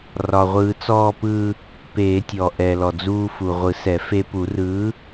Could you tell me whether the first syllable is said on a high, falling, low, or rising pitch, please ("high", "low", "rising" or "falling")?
low